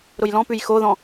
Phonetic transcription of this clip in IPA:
ɾʊjlɔ̃pʉj xoðɔ̃

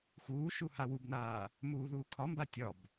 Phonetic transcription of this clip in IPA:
xuːʃu hawubnaː | muːðuːkʰɒmba tʲɒb

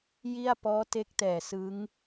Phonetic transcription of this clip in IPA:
ji˥˩a̯ pɔː˦˥te˦˥k̚tɛː˨˩ sɯ˦˥ŋ

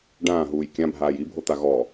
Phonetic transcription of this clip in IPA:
ɖãːɦuːj kʲãbʱaːj ibʱot̪a ɣɔ

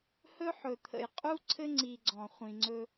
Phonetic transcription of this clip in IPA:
hɵ˦ ħɵ˨t̪ʰə̰˨jqʼu˦ ǀʰɘ˦ŋ͡ǀi˨ ɡ͡ǀɔ̃˨ χʷĩ˨ŋ͡ǀɵ˦

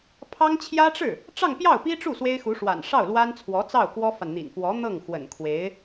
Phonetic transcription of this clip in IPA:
pʰɑ˥ŋ t͡ɕʰjä˥ʈ͡ʂɻ̩˥˩ | ʈ͡ʂɑ˥˧ŋpjɑ˥˩ʊ̯pi˥ʈ͡ʂu˥˩ swe˥ɪ̯xu˧˥ʂwa̰˨˩n ʂɑ˥˩ʊ̯lwa˥nt͡sʰwɔ˧˥t͡sɑ˥˩ʊ̯ kwɔ˥fa˨n n̪ḭ˨˩nfwɔ˧˥ n̪ɤ˥˩ŋxwə̰˨˩n kʰwe˧˥ɪ̯

